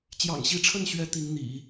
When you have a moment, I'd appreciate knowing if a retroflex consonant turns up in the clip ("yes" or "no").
yes